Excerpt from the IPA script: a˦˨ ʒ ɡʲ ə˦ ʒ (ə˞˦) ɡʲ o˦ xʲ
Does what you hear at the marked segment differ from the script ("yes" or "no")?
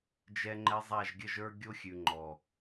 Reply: no